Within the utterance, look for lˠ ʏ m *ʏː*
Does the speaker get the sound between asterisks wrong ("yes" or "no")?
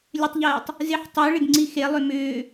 no